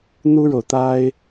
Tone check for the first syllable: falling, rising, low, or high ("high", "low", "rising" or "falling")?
high